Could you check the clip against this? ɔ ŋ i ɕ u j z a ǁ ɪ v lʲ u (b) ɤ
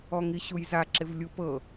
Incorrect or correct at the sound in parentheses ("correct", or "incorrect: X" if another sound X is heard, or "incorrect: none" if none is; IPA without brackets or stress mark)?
incorrect: p